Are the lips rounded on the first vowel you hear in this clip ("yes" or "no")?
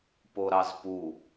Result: yes